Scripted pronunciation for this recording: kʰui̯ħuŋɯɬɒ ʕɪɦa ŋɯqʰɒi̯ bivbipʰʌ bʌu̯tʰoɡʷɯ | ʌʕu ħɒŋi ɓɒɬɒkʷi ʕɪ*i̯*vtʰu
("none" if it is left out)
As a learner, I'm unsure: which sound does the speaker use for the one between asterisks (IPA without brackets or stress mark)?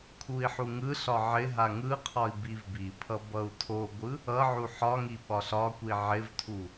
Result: none